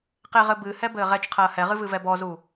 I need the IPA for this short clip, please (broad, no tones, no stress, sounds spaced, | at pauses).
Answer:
q e ʁ ɘ b ɨ h ɛ b ɘː ʁ ɛ t͡ʃ qʰ ɐː h ɛ ʁ ɨ v ɨ v ɛ b ɔ z u